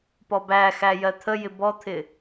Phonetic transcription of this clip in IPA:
p ɔ b æ x æ j ɜ t̪ʰ ə j ɪ b ɔ t̪ʰ ɪ

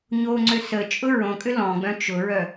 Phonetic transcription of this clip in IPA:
ɲ o ŋ͡ǀ ø s ə t͡ʃʼ ʊ ɹ õ kʼ ʏ l ɔ̃ ɡ͡b œ̃ t͡ʃ ʊ ɹ œ

